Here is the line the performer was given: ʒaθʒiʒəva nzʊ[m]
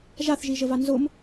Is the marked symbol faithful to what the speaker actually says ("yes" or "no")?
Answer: yes